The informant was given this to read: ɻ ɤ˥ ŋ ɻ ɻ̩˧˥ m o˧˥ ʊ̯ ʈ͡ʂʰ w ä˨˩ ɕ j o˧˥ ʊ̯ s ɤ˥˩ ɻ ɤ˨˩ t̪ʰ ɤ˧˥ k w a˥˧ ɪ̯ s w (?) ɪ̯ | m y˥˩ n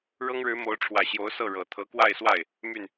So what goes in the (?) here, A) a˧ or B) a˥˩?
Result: B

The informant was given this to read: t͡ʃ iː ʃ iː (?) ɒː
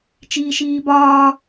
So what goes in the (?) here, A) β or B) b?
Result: B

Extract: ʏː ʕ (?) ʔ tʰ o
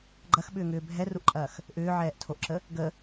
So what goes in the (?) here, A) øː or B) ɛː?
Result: B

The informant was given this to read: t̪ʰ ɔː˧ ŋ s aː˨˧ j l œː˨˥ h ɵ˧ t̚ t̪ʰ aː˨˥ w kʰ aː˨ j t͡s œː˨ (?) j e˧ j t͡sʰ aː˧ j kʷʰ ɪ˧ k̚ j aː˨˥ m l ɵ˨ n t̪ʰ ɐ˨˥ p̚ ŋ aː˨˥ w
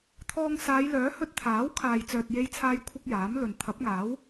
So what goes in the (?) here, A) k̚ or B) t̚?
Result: B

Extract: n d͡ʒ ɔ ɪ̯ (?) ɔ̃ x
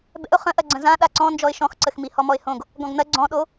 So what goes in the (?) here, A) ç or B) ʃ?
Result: B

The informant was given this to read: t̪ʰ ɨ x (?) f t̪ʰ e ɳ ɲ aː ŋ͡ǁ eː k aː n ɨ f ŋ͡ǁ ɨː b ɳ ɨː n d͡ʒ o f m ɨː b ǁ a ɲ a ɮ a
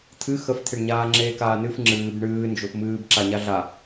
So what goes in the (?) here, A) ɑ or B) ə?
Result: B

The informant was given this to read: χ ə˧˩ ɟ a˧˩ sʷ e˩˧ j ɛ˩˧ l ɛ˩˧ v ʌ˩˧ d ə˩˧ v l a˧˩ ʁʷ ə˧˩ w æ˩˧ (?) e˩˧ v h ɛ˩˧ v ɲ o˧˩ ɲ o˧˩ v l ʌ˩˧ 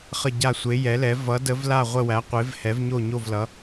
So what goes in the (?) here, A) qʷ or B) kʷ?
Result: A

